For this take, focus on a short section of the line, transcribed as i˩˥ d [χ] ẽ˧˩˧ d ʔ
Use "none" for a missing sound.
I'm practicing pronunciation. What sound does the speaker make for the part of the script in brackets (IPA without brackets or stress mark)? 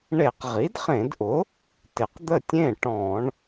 χ